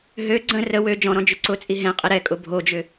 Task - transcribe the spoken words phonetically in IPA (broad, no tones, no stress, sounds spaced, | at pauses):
ɦ ø ɡ͡ǀ ə̃ r ə w ø d͡ʒ ɔ̃ ɾ ɔ̃ d͡ʒ ʏ ǀ ʊ t͡sʼ i ɦ ɛ̃ qʼ ɪ ɾ ɛ kʼ ʊ bʱ o d͡ʒ ʏ